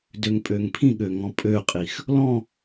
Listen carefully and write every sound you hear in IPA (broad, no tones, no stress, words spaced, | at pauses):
døŋpʼøŋpʰĩɠø ŋɔ̃pʼøqʼix | lɔ̃